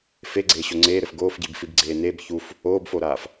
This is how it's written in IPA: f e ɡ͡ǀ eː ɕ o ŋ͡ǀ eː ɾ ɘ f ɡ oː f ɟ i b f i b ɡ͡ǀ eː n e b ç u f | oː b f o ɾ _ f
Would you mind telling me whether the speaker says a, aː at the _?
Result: aː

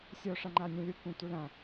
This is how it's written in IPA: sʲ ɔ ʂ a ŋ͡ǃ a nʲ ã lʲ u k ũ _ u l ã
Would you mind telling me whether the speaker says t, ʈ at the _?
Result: t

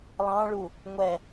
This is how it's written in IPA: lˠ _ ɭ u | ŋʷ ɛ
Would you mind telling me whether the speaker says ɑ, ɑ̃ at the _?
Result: ɑ̃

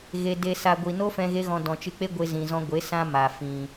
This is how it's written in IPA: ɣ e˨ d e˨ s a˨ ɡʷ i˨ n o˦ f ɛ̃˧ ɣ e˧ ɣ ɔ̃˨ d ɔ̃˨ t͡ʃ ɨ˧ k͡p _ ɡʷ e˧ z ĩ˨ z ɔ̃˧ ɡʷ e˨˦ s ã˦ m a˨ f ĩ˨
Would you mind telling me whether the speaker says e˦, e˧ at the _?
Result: e˦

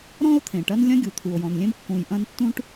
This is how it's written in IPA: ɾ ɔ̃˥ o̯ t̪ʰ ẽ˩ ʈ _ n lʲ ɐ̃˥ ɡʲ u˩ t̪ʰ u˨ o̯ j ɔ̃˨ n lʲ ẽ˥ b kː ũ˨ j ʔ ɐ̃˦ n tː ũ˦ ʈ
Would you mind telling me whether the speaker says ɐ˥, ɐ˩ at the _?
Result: ɐ˥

